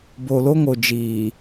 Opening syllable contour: low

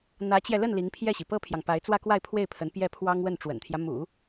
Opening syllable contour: rising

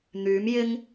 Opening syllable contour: rising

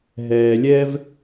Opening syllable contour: low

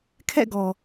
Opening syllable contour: falling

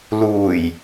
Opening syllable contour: low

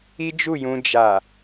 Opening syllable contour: high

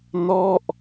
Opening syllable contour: falling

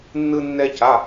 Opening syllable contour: high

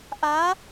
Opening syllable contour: rising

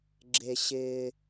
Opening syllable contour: low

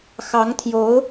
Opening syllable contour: rising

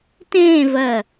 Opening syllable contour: falling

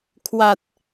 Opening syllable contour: low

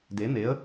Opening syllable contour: rising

